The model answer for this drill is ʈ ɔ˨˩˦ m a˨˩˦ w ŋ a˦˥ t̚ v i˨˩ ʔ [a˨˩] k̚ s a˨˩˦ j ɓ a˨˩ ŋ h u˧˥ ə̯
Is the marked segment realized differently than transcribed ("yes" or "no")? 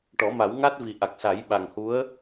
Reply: no